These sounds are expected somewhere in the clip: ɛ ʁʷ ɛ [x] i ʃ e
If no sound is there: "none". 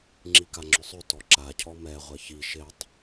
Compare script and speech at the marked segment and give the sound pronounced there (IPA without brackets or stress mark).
ç